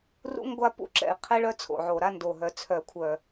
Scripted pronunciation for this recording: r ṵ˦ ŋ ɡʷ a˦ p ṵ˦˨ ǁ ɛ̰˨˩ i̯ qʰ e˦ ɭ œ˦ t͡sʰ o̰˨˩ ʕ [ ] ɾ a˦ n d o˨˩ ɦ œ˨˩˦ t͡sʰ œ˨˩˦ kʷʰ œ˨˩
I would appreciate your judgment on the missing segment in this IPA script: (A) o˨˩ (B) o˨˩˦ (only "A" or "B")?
A